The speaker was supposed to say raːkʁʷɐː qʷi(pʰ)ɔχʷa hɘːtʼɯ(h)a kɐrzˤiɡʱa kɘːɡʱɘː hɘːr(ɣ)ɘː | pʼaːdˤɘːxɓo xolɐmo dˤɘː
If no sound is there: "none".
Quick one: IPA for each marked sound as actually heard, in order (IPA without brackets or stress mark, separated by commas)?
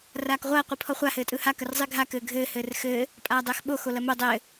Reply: pʰ, h, x